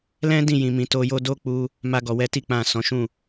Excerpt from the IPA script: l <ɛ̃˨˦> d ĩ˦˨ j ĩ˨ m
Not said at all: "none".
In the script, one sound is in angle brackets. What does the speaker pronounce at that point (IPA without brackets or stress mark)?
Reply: ɛ̃˦